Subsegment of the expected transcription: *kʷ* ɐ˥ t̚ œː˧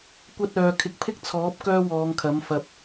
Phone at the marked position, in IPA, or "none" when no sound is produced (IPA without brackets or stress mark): kʷ